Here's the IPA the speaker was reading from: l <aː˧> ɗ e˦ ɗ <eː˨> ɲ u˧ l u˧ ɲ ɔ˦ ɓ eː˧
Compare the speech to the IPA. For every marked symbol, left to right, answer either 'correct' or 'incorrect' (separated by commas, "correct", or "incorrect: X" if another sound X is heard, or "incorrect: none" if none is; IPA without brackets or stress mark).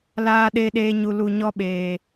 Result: incorrect: aː˦, incorrect: eː˦